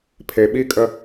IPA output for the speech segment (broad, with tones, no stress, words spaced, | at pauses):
pʰe˨ɓi˦˨kʼə˦